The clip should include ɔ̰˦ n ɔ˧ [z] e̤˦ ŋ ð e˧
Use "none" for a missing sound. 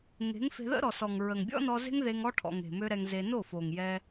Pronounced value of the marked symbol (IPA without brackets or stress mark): z